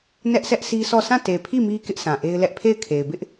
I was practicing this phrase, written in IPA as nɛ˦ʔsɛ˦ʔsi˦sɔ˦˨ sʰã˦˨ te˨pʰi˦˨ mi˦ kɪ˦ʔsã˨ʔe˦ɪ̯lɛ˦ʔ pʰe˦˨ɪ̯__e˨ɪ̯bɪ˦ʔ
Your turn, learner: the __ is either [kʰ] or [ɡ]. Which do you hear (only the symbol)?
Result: kʰ